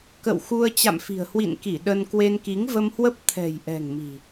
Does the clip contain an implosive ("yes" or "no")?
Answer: yes